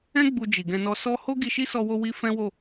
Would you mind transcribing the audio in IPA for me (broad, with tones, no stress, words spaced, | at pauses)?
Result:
ɛ̃˦ ɡ͡bu˧d͡ʒi˨ɡɛ̃˧nɔ˧ sɔ˦ ho˦ ɡi˧ʃi˦sɔ˧wo˧ wi˧ fɛ̃˦wo˦˨